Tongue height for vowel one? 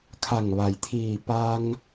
low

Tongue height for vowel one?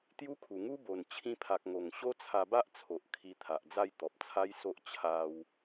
high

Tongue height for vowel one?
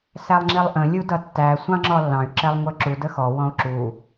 low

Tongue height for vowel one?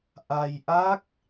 low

